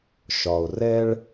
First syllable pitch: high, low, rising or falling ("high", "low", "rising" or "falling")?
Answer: low